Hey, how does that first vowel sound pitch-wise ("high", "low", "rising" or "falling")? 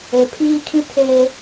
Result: low